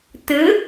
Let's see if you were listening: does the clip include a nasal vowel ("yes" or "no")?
no